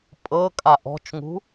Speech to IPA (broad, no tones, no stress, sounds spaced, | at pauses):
pʼ ɤ kʼ a ʔ ɔ̤ t͡ʃ ŋ ṳ